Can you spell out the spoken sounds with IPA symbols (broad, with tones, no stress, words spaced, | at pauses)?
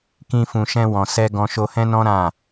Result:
kĩ˧fũ˨ ʃɛ̃˧wɔ̃˨sɛ˧ ɡɔ̃˧ʃo˧hɛ̃˦nɔ̃˦ ɾã˦˨